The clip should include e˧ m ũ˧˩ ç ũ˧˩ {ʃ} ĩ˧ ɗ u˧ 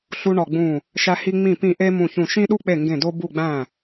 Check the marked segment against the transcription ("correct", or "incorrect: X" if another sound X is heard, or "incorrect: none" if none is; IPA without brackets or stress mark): correct